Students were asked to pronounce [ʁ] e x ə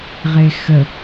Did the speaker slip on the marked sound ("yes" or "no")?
no